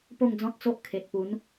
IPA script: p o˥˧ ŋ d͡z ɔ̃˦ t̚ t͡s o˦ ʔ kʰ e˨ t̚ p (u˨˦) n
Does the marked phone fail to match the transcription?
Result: no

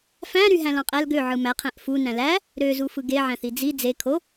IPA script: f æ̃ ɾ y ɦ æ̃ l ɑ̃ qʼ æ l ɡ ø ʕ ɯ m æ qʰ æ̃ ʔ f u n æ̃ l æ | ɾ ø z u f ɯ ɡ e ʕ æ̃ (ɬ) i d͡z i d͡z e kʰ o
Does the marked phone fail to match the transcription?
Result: yes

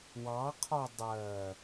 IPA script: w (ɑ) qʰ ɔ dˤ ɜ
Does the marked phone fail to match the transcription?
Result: no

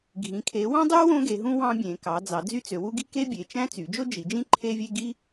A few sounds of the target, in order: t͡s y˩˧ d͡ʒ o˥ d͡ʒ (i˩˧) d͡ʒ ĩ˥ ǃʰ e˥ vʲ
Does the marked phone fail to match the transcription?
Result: no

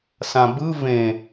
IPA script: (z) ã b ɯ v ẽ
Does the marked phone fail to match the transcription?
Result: yes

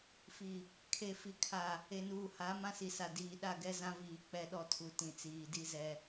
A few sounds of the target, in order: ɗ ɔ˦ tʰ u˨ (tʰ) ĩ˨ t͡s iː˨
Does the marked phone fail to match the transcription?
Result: yes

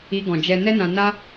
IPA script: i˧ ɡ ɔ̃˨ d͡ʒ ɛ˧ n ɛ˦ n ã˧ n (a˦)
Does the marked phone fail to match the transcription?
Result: no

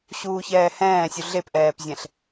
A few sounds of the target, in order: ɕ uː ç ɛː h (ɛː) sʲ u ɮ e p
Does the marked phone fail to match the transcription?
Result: yes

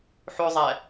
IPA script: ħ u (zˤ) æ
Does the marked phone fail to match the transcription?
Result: no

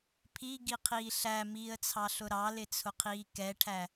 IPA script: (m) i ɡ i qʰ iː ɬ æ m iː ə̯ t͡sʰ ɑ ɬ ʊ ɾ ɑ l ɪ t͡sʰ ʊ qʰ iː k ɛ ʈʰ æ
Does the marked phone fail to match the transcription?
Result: yes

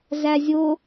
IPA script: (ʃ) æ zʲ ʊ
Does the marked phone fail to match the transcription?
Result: yes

